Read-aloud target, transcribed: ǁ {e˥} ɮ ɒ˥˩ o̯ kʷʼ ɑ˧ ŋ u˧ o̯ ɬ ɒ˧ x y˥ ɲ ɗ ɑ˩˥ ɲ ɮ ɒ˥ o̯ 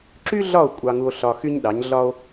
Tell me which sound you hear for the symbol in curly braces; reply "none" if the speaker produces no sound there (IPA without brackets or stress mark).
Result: y˥